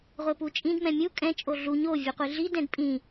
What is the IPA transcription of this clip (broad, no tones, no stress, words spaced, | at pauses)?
ʁʷeput͡ʃʼĩd mɛ̃mʲu kʼɛ̃ t͡ʃʼoɮu ɲo vʲeqʷiɮi dɛ̃dpʼĩ